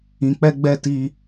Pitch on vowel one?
low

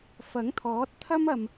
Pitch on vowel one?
rising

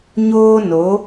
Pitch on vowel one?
high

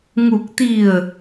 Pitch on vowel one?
low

